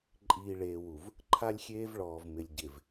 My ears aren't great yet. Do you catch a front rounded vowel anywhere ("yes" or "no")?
no